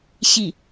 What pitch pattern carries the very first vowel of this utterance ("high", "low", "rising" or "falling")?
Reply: falling